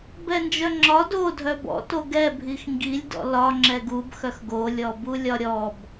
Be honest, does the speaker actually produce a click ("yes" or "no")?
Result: yes